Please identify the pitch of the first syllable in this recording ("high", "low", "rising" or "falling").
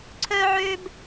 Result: high